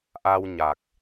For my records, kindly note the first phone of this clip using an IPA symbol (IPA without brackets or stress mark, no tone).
ʔ